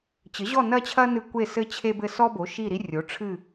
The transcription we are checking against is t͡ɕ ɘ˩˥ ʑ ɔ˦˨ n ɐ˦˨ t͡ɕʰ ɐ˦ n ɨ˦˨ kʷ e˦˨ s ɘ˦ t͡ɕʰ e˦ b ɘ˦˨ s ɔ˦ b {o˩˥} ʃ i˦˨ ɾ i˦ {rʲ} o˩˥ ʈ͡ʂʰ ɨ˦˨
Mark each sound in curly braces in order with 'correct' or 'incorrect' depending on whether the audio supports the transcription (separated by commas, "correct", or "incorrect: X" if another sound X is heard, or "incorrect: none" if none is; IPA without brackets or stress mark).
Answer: correct, correct